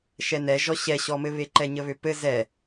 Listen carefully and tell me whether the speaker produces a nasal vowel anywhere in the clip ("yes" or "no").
no